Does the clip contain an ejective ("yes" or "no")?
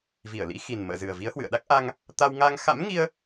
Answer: no